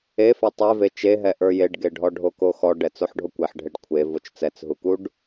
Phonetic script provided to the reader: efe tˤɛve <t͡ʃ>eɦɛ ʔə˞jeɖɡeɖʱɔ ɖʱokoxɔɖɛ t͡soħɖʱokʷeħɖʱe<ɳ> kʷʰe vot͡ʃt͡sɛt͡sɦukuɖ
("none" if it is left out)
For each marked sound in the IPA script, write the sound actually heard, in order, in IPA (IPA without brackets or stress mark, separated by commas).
t͡ʃ, ɖ